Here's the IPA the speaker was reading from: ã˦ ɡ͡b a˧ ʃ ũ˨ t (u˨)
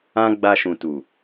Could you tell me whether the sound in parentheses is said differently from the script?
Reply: no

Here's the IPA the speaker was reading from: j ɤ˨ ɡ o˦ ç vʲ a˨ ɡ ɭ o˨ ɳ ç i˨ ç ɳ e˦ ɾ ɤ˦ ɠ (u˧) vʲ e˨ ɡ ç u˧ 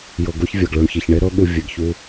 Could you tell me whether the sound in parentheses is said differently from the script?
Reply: no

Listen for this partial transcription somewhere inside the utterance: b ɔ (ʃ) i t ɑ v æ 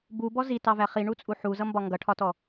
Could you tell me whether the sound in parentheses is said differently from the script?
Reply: yes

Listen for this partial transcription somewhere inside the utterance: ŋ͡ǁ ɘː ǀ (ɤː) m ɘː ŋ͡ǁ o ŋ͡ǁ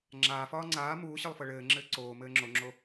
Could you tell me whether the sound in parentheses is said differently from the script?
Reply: yes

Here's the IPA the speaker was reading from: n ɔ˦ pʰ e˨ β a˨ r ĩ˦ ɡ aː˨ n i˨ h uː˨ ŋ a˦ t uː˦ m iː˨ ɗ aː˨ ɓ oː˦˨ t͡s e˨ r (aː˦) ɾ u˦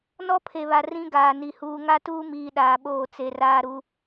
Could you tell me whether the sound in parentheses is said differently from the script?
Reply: no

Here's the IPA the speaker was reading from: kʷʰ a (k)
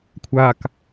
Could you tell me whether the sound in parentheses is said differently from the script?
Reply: no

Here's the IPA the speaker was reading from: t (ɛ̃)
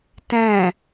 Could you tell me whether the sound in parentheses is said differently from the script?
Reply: no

